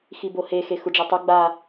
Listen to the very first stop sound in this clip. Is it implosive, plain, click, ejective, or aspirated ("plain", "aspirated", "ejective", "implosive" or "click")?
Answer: plain